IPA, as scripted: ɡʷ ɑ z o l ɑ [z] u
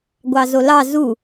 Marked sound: correct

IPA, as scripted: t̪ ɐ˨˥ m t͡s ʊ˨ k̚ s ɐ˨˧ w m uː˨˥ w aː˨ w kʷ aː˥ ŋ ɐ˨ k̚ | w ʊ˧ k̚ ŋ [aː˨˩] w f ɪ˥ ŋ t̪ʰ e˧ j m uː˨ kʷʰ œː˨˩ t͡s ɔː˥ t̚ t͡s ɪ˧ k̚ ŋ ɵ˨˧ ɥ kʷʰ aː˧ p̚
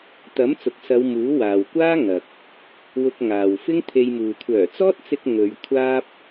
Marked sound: incorrect: aː˨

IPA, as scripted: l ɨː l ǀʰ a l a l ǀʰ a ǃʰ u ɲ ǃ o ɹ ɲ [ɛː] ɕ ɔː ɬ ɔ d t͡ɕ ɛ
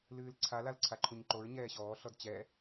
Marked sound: correct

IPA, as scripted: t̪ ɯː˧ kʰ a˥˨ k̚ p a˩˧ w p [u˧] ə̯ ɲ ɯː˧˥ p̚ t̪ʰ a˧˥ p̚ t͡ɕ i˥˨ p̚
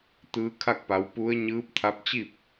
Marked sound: incorrect: u˧˥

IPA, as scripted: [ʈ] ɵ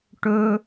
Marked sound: correct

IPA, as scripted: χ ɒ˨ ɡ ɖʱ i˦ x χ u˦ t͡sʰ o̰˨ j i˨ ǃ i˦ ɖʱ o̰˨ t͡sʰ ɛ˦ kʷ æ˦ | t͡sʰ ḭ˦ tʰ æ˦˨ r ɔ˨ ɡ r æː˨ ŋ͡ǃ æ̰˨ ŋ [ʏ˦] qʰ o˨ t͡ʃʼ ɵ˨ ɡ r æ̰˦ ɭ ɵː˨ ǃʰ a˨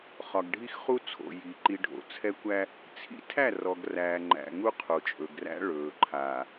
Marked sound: incorrect: u˦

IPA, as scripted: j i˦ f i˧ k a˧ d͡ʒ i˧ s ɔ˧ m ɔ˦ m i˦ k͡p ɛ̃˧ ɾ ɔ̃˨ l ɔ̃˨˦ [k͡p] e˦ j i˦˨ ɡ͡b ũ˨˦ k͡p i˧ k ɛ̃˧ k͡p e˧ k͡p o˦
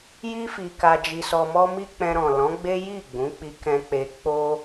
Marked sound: incorrect: ɡ͡b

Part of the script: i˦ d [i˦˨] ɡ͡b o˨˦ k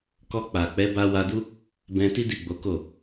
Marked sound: correct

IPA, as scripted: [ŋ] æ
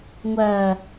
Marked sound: incorrect: ŋʷ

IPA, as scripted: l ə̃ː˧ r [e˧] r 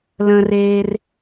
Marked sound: incorrect: eː˧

